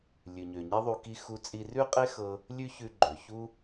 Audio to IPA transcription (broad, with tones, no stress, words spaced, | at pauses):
lʲʉ˩ɲø˩ɲe˥ðˤu˧ ki˥ xu˧t͡sʼi˧ rʉ˥qʼe˥xɤ˧ | lʲʉ˥çʉ˧ ɡ͡ǃø˩çu˥